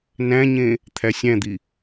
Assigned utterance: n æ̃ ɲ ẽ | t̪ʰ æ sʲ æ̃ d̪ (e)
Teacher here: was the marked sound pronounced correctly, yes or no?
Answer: no